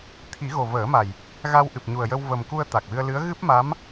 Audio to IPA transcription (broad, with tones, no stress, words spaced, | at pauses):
t̪ʰi˨˩˦ɣo˨˩vəː˨˩˦ma˨˩j | ɣa˧w ʔɨ˨˩p̚ɲu˨˩ə̯jə˧w və˨˩mku˧ə̯ t̪a˨˩k̚wɨ˧ə̯lɨ˧˥ə̯ ɣɨ˦˥p̚ma˧˥m